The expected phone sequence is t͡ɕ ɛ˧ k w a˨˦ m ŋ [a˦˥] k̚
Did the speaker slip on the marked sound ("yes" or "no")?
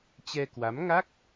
no